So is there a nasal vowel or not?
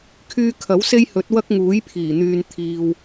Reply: no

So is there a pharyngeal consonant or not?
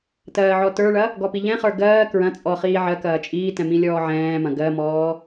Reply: yes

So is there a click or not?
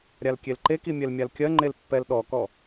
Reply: yes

